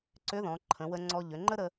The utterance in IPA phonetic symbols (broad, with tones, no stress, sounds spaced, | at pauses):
ǀ ʏ˧˥ ð ɔ̃˩˧ ǃʰ ə̃˩˧ w ə˧ ŋ͡ǀ ɔ˧ ʎ ʏ˩˧ ŋ͡ǃ ə˥ ɾ ə˧